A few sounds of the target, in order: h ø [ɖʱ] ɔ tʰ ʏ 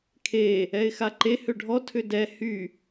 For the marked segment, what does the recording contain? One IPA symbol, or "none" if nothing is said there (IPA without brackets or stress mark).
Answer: ɖʱ